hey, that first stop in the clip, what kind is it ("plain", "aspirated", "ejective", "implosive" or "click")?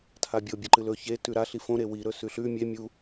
aspirated